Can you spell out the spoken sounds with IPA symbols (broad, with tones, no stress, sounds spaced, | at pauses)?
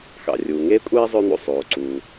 x ɑ̰˩ rʲ uː˩ ŋ eː˥ kʷʼ eː˥ zˤ ø˥ n̪ ṵ˩ sˤ oː˩ ǀ uː˩